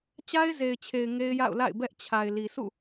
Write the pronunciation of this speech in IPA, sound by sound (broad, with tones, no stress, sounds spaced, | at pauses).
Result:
t͡ɕ a˦ ɪ̯ z e˨ ɪ̯ t͡ɕʰ e˨ ɪ̯ ŋ e˦ ɪ̯ j a̰˦˨ ʊ̯ l a̰˦˨ ɪ̯ b ɛ˦ ʔ t͡ɕʰ a˨ ɪ̯ l i˨ sʰ ṵ˦˨